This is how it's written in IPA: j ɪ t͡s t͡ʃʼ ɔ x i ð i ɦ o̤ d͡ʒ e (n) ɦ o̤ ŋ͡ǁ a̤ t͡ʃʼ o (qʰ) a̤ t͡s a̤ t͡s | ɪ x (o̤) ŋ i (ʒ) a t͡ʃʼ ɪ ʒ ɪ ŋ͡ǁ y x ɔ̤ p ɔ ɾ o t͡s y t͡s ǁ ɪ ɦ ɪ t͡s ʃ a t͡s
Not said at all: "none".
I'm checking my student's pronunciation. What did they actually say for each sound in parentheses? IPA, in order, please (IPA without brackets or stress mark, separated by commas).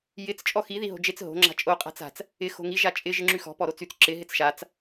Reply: t͡s, qʼ, o̤, ʒ